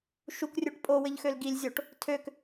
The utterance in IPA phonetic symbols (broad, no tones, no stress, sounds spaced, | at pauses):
ʃ u k rʲ u ʈ pʼ o w ɘ ʎ x ø l ɡ i lʲ zʲ o ʈ | tʰ ø k